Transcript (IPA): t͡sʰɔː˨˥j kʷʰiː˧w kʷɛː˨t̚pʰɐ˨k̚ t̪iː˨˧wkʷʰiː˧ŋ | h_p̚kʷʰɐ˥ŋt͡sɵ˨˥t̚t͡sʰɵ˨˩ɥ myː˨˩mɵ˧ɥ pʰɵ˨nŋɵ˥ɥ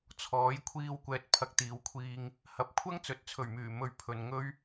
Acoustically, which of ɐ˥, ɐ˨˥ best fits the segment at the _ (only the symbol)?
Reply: ɐ˨˥